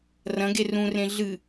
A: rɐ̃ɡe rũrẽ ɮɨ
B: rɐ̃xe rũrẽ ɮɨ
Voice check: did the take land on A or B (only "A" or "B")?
A